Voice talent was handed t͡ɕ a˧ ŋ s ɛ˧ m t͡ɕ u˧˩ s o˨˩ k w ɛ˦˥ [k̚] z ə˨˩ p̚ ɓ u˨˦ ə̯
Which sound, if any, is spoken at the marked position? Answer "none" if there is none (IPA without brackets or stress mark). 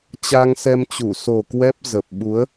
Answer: p̚